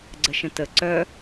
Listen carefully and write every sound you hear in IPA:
ɡ͡ǀ ə ʃ ə̃ t ə ǀ œ

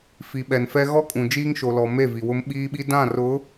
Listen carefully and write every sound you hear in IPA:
f i˨ ɓ ɛ˨ n f ɛ˦ ɣ ɔ˦ kʼ ũ˨ d͡ʒ iː˦ ŋ ʃ o˨ l ɔ˨ m e˦˨ v i˨ w ʊ˦ m ɓ iː˦ ɓ i˦ d ã˦˨ r ʊ˨˦

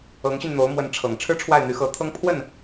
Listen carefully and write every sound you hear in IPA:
ɤ˧˥ ŋ ɕ y˧ n n̪ o˧˥ ʊ̯ m w ə˧˥ n ʈ͡ʂʰ ɤ˨˩ ŋ ʈ͡ʂʰ ɻ̩˥ ʈ͡ʂʰ w a˥˩ ɪ̯ n̪ y˧˥ x ɤ˧˥ t̪ʰ ɤ˥ ŋ pʰ w ə˥˩ n

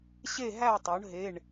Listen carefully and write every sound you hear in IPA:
ɕ e˦˨ ɦ æ˦˨ tˤ o˩˧ ɳ ɦ e˩˧˩ ɳ

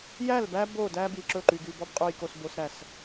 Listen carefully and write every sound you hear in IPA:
j æ˦˨ l b æ˦ b o˦˨ d æ˦ b i˨ ǁ ɵ˦˨ ǃ y˨ ɡ y˨ b ɔ˦ b qʼ u˨ j k o˨ s b o˨ s ɾ æ˨ s

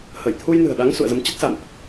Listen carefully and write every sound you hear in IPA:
h ə˧˩ j t̪ʰ u˧ j n ɨ̤˨˩ ə̯ ɗ a˨˦ ŋ s ṵ˧˨ ə̯ z ə˨˦ m t͡ɕ ə˦˥ t̚ s a̰˧˨ n ʔ

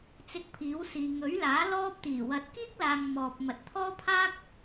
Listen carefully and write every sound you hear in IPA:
t͡s ɪ˧ k̚ pʰ iː˨˥ w s iː˨ ŋ ɵ˨˥ ɥ l aː˨˥ l ɔː˥ p̚ t̪ iː˨˩ w ɐ˨˥ t̚ k iː˥ k̚ l aː˨ ŋ m ɔː˨ p̚ m ɐ˨ t̚ t̪ʰ ɔː˥ pʰ aː˥ k̚

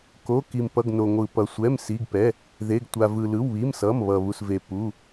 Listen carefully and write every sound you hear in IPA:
k o˩˧˩ k i˩ m p ʌ˩˧˩ ɡ n o˩ ŋʷ ɯ˩ p ʌ˩ sʷ ɛ˩˧˩ m s i˩˧˩ ɡ p ɛ˩˧˩ | ð e˩˧˩ ɡ tʷ a˩ v ɯ˩ l ɯ˩˧˩ w β i˩˧˩ m s ʌ˩˧˩ m β ʌ˩ β u˩ s v e˩ p u˩˧˩

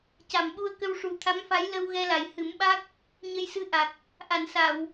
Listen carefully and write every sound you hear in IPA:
c a˨˩˨ m ɓ u˧ ə̯ k ə˧ w ʂ u˨˩ t̪ʰ a˧˥ m f a˧˥ j l ə˧ w ɣ ɛ˧ l a˨˩ j h ɨ˨˩˦ m ɓ a˦˥ k̚ | ɲ ə˧ j s ɨ˧˥ ʔ a˨˩ k̚ | ʔ a˨˩˨ n s a˨˩˨ w

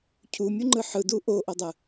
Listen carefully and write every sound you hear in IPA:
cʰ u mʲ u ŋ͡ǃ ɯ ħ ɯ d u ʔ o ʔ o dˤ ɯ

